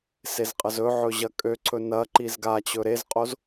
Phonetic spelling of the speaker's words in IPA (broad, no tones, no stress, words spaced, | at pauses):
sezqʼəzɵʕɵ ʑɐkʼøǀʰɵ nɐǃiz ɡat͡ɕɵ ɾezqʼoz